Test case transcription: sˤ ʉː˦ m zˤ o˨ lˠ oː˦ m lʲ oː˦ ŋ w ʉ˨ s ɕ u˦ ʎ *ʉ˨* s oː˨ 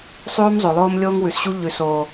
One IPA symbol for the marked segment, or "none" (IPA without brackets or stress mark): ʉ˨